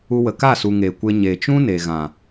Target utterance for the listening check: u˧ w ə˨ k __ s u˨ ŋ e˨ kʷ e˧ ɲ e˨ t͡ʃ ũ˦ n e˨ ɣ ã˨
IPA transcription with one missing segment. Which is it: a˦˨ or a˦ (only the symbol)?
a˦˨